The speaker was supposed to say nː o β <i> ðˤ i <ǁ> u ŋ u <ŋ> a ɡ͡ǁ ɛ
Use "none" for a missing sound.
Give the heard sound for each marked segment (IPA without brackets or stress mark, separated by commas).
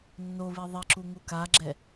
i, ǁ, k